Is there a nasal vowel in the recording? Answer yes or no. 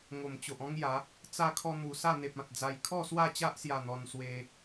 yes